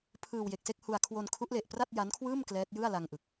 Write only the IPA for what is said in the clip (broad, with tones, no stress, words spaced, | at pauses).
pʰɯː˧w je˨˩k̚se˥˩k̚hu˧a̯ kʰwo˧nkʰu˦˥ʔle˨˩ʔ pra˥˩t̚ja˦˥nkʰwɯː˥˩m klɛː˦˥t̚jɯ˥˩a̯la˧ŋʔɯ˨˩k̚